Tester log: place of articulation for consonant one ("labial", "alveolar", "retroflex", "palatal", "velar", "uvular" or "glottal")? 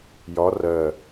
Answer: palatal